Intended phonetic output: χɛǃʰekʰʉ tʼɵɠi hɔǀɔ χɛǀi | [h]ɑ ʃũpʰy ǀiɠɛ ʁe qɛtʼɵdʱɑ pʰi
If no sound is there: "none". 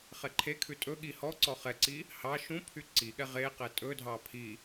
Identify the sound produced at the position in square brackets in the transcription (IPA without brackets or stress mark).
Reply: h